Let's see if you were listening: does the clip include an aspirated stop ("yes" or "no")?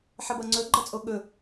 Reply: no